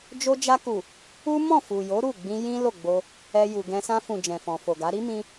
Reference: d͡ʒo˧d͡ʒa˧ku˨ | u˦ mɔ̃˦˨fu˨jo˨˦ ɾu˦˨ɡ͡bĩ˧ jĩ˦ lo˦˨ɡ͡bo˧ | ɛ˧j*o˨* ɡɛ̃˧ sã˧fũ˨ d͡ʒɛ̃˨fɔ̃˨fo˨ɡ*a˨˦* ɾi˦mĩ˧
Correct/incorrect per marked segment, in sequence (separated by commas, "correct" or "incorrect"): incorrect, correct